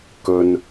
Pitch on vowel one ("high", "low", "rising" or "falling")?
low